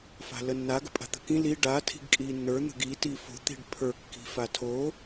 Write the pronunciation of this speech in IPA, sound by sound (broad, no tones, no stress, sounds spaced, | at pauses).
f a̤ l ə nː a ɡ ə̤ pʼ a̤ t̪ ə̤ k ĩ l i ɖ a tʰ i̤ ɡ kʼ iː nː ə˞ n̪ ə̤ ɡ i t iː f o̤ t̪ i̤ ɖ pʰ ə˞ kː i̤ f a tʰ o